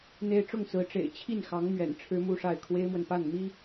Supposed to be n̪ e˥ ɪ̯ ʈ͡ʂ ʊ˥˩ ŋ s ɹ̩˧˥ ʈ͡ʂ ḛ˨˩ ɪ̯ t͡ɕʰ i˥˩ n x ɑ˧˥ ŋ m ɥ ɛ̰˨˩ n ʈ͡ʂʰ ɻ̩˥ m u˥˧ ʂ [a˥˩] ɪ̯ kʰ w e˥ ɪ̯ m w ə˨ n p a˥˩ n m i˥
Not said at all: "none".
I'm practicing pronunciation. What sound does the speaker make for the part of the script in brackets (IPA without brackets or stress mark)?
a˥˩